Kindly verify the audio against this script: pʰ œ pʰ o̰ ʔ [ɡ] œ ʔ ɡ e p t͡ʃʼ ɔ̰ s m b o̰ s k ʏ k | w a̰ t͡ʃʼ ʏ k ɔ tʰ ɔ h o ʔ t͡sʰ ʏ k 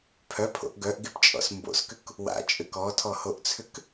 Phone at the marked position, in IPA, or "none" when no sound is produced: ɡ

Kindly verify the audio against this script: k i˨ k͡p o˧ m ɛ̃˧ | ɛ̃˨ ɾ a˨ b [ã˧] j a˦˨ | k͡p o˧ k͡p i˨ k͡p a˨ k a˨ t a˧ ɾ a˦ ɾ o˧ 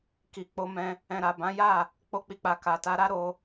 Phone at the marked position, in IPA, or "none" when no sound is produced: ã˨˦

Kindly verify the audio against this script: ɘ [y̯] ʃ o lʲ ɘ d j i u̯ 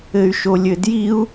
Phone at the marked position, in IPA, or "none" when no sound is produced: y̯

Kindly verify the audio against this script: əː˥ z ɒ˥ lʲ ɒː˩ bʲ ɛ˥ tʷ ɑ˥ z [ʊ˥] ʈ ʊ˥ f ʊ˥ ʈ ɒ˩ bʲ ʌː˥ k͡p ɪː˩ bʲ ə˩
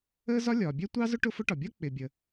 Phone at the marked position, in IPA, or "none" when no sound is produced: ʊ˥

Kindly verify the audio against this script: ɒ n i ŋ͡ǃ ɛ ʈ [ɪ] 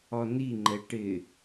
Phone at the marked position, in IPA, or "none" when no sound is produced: ɪ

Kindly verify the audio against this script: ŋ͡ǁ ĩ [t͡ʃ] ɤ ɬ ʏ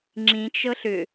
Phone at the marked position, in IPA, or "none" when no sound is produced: t͡ʃ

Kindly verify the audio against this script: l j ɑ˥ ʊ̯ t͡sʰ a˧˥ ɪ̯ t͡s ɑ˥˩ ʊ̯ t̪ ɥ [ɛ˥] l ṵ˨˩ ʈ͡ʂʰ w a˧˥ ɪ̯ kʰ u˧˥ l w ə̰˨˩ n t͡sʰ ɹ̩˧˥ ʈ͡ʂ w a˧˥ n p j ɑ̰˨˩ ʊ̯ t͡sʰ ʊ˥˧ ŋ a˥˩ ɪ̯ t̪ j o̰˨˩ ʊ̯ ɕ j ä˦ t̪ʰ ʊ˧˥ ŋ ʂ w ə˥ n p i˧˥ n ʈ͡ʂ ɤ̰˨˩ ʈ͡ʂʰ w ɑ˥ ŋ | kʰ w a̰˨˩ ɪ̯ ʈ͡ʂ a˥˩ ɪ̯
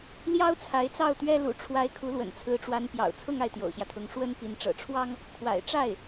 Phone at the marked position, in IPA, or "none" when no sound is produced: ɛ˥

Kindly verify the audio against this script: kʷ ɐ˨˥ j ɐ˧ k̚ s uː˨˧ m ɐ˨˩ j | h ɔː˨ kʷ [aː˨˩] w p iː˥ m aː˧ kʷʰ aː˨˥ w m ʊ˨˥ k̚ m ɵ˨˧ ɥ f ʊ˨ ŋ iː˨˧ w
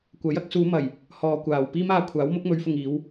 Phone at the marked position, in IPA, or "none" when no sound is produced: aː˨˩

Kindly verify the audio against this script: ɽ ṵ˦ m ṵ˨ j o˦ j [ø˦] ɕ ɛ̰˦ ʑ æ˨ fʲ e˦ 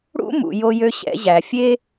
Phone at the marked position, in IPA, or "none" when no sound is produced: ø˦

